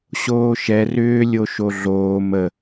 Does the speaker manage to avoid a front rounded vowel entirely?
no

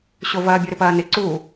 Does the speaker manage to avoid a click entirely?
no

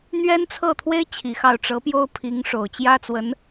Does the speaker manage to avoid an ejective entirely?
yes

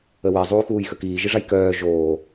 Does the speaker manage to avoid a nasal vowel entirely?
yes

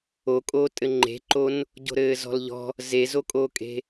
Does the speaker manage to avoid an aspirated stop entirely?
yes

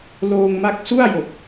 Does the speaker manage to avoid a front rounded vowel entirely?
yes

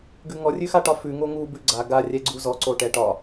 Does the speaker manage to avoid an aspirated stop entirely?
yes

